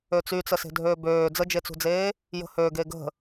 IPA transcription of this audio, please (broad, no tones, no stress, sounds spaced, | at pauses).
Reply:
ø t͡s y t͡s ə s e̤ dʱ øː b øː d͡z ə d͡ʒ e t͡s ṳ d͡z eː | j ə̤ h ø ɡ e ɡ ə̤